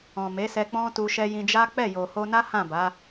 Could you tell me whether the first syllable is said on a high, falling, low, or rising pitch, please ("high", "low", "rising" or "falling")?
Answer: low